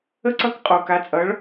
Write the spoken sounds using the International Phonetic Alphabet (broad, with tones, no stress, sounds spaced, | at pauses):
ə˥˧ ǀ ʌ˦˥ k qʼ o˨˩ k a˨˥ t͡sʼ ʌ˨˥ ɭ